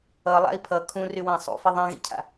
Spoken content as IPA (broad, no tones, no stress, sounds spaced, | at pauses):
ʌ lˠ a̰ i̯ pʰ ʌ kʰ ũ r y w ã sˤ ṵ f i ðˤ ɛ̃ ɣ ḭ cʰ a̰